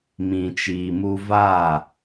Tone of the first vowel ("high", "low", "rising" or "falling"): low